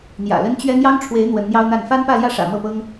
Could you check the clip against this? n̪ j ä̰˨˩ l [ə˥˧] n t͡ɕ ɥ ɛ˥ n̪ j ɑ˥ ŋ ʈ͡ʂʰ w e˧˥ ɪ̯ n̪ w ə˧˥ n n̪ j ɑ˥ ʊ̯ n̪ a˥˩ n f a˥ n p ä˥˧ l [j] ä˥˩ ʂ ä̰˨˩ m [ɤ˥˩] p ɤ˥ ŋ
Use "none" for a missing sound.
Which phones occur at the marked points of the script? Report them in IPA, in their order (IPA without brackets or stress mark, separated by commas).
ə˥, j, ɤ˥˩